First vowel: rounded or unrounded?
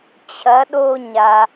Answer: unrounded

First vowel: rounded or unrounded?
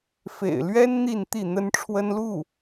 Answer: unrounded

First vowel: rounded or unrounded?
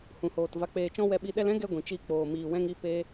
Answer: rounded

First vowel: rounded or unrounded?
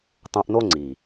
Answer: rounded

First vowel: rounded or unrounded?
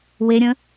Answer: unrounded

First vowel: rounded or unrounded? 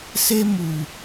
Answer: unrounded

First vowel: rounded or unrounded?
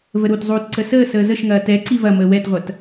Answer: unrounded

